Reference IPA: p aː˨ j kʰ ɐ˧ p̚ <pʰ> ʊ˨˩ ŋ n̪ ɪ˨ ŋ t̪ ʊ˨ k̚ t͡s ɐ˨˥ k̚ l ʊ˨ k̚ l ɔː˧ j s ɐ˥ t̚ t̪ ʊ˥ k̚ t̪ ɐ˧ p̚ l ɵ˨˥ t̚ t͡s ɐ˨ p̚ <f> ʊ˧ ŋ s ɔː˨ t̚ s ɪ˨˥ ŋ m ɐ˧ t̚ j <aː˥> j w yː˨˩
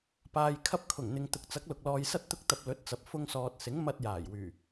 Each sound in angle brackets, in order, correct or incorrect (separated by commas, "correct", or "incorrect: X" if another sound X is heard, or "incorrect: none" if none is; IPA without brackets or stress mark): incorrect: kʰ, correct, incorrect: aː˨˩